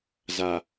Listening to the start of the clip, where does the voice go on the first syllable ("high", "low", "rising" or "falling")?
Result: low